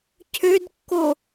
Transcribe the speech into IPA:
cʰ ø d kː o

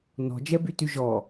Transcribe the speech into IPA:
n ɔ̤ d͡ʒ ɛ b y t y ʒ ɔ

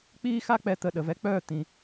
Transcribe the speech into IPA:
k͡p iː˦ x a˦ k͡p ɛ˧ t̪ ə˧ ɗ ə˨ v ɛ˧ k͡p œː˦˨ t̪ ĩ˧

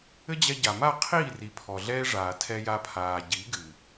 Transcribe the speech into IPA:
ɘ˦ d͡ʑ ɛ˧ ɟ a˨ m a˦˨ qʰ iː˦˨ r i˨ pʰ ɔ˨ ɮ ɛː˦ ʐ aː˨ tʰ ɛ˧ j a˧ pʰ aː˨ ɟ i˨˦ ɡ ɨ˨

